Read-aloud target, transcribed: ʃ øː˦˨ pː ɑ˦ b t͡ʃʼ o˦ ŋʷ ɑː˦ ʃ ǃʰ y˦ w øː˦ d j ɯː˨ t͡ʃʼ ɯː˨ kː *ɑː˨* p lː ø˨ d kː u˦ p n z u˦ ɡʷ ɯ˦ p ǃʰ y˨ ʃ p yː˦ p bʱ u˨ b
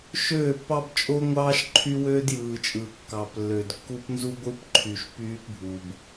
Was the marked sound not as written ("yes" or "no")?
yes